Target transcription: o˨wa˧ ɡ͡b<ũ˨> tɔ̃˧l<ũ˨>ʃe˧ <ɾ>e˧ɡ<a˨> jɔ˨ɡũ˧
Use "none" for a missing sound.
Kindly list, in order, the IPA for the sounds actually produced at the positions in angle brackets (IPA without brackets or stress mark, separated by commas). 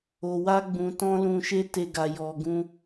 ũ˨, ũ˨, t, a˨